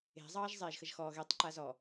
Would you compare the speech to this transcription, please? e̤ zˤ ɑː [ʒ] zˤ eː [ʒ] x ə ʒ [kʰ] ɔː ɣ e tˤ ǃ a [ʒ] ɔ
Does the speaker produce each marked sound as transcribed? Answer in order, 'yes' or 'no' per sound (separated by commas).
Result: yes, yes, no, no